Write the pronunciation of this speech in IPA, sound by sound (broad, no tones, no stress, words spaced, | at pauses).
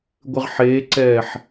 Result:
ɡʷɨʁħeːǀɛːħ